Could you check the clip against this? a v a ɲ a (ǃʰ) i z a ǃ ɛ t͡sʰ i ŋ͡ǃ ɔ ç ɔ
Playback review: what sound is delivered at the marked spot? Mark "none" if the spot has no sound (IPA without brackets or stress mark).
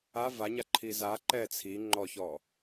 ǃʰ